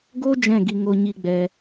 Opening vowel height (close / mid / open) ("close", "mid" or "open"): mid